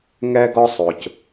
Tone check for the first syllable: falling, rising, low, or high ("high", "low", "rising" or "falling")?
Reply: high